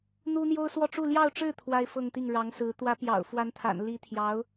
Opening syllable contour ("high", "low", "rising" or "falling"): high